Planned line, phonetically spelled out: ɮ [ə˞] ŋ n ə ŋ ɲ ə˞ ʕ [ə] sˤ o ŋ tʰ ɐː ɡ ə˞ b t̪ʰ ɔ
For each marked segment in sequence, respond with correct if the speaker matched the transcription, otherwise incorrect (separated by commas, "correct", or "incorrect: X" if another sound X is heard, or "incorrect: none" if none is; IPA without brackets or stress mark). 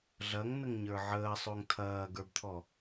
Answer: incorrect: ɐ, incorrect: əː